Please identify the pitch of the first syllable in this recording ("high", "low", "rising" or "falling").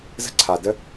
high